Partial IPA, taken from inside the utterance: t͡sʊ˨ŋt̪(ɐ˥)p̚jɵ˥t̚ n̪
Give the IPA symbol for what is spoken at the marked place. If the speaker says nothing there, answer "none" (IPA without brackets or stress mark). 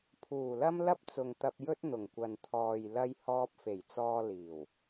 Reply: ɐ˧